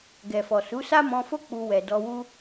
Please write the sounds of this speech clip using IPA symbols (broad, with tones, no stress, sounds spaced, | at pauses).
ɡ ɛ˨ f ɔ˨ s u˨˦ s a˦ m ɔ̃˧ f o˦ k͡p u˧ w ɛ˨ d ɔ˧ w u˦